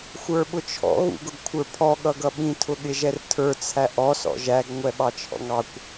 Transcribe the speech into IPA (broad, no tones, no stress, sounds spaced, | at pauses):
xʷ ə˞ ɓ ʊ t͡ʃʰ ɔ̰ ɣ ṵ ɡ ʊ ɡ kʷʰ ə˞ pʰ ɔ ɠ ʌ ɡ ʌ ɓ ĩ tʰ ʊ ɠ ɪ ʒ ɛ r tʰ ə˞ t͡sʰ æ ʔ ɔ s ɔ̰ ʒ æ ɡ ŋʷ ɛ ɓ ɑ t͡ʃʰ ɔ̰ ŋ ɑ kʷ